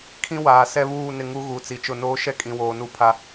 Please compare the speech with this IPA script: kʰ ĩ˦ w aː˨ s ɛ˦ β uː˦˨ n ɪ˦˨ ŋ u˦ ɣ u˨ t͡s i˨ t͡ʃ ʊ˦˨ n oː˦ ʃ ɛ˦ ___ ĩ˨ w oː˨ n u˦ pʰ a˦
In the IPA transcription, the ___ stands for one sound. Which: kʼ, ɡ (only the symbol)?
kʼ